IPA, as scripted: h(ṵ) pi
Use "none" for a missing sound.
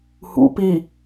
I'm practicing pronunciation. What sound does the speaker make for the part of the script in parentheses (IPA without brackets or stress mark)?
ṵ